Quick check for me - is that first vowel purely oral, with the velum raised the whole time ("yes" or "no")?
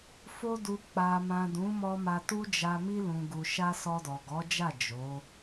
yes